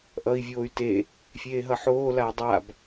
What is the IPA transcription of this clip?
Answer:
ʔʌi̯vʲoːy̯ te | fʲeːɦʌħoːlaː dˤab

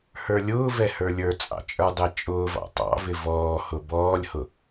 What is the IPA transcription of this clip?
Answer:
hə˞lʲʊːvɛ hə˞lʲə˞t͡sʼɑ̰ t͡ʃʼə˞dˤɛt͡ʃʼʊːvɑ̰ tˤɑ̰vɪ vɔːhʊ bɔːlʲhʊ

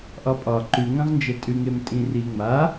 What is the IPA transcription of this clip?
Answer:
ʔɒpʼɒ ǃʉŋãʁnd͡ʒɛ tʼʉŋem tʼĩriŋ͡ma

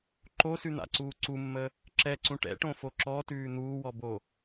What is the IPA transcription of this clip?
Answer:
ǃosʉn̪a̰ǀuː ǀumːə | ǁɛǀũ ʈɛ̰ʈõfo ǁɔtʉː n̪uːwɔbo

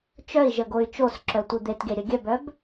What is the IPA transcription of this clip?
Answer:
t͡ʃœi̯ʒəɡoy̯ t͡ʃosǁœtʷi d̪etɡeɾʲə ɡʲœbœb

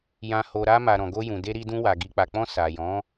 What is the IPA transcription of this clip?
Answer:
jã˨ho˨ ɾa˧ma˨ ɾɔ̃˨ɡo˧jũ˨ de˧ɾi˧dũ˧wa˨ ɡi˨k͡pa˨k͡pɔ̃˧ sa˨jɔ̃˨˦

